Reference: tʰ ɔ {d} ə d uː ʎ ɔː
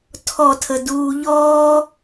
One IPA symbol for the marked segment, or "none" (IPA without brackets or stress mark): tʰ